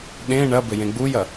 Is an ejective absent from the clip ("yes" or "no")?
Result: yes